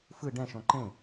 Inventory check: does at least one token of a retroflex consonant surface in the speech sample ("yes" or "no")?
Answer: yes